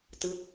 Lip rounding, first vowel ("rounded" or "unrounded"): unrounded